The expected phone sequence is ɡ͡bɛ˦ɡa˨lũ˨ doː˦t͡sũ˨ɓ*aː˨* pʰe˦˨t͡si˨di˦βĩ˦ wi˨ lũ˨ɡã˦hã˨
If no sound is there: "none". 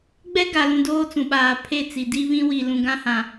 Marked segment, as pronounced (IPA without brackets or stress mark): aː˨